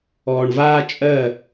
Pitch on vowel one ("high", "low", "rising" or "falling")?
low